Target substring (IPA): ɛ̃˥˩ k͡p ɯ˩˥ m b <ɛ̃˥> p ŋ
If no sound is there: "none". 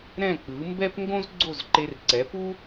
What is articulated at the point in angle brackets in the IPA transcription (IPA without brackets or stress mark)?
ɛ˥